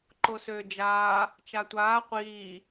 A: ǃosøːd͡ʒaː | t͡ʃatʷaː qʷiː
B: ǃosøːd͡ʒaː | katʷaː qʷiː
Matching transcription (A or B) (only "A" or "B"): A